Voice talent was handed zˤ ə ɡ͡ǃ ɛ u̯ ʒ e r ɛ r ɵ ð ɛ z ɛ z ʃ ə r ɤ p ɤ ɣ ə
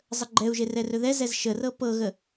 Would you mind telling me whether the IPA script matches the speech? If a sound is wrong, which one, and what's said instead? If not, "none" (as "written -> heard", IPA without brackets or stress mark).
none